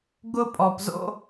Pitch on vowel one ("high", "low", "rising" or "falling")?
high